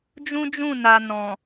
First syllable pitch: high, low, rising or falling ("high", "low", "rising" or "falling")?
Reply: high